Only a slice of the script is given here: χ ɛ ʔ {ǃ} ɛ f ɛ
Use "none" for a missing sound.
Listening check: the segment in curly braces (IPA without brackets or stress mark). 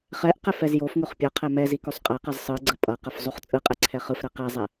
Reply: q